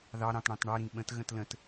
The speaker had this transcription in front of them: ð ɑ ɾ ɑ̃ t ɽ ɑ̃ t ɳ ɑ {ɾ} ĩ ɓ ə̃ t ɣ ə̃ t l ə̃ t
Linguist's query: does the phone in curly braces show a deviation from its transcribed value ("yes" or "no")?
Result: no